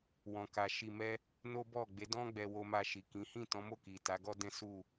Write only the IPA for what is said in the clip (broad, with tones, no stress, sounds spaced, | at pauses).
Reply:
w ɔ̃˨ k a˨ ʃ i˧ m ɛ˦ | n o˦ b ɔ˦˨ ɡ͡b e˨˦ d ɔ̃˦ ɡ͡b ɛ˧ w o˧ m a˧ ʃ i˨ k ĩ˨˦ h ĩ˦˨ t ɔ̃˨˦ m o˦˨ k i˨ t a˨˦ ɡ ɔ˦ d ɛ̃˦ s u˦˨